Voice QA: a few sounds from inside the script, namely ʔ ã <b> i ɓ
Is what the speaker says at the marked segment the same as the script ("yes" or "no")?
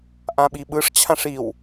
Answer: no